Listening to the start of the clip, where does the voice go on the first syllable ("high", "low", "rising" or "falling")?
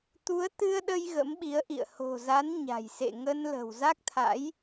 rising